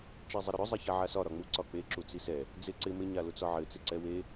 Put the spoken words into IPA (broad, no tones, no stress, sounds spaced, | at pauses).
t͡ʃ e zˤ ɪ ɾ ʊ ɾ ʊ zˤ ɛ ç a ʕ a s ɒ ɾ ɒ ŋ͡m u ǀ ɒ k͡p e ǁ u t͡s i s ɛ | d͡z e ǀ ɪ m ɪ ɲ a l ʊ t͡s ɒ ʕ ɘ t͡s ɪ ǀ ɛ w e